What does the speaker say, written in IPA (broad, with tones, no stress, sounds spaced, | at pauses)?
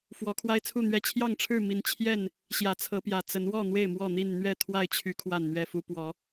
f w ɔ˨˦ kʰ w a˦ ɪ̯ t͡sʰ u˥˨ n̪ ɥ ɛ˥˨ t͡ɕʰ j ɑ˥˨ ŋ ʈ͡ʂʰ ɻ̩˥˨ m i˨˦ n t͡ɕʰ j ɛ˥˨ n | ɕ j ä˨˦ t͡sʰ ɤ˨˦ p j ä˨˩ t͡s ə˨˦ n w ɔ˥˨ n̪ w e˥˨ ɪ̯ m w ɔ˥˨ n̪ i˥˨ n n̪ ɥ ɛ˥˨ t̪ʰ w a˥˨ ɪ̯ t͡ɕʰ y˨˦ kʰ w a˥˨ n n̪ ɥ ɛ˥˨ f u˦ p w ɔ˨˦